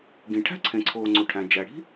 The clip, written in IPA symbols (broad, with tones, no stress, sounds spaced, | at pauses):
ɡ ĩ˩ ʈʰ æ̤˥ ǀʰ ẽ˩ ǀʰ oː˩ ŋ͡ǀ u˩ ʈʰ æ̃˩ d͡ʒ æ˩ ɽ i̤˥